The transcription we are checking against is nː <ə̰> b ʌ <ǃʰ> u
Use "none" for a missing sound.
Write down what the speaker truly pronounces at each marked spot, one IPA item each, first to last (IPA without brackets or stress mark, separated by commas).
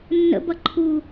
ə̰, ǃʰ